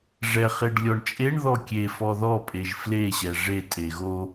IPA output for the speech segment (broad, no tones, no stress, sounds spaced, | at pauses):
ʐ ɛ χ e ɖ lʲ ɔ ɳ t͡ʃʼ e ɳ ð ɔ kʲ e f ɔ ð ɔ pʼ e ʒ f l e ɕ ɛ ʐ e tʼ e ɣ o